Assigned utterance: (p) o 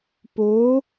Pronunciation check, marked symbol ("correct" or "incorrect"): correct